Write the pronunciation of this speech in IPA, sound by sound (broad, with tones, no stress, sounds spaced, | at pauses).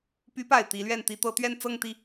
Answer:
p y˧˥ p a˨˩ ɪ̯ t̪ i˧˥ l ɥ ɛ˥˩ n t̪ i˥ t̪ ɤ˧˥ t̪ ɥ ɛ˥˧ n t͡s ɤ˥˧ ŋ t̪ i˥˩